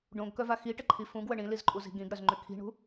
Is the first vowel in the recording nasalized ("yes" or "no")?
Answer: yes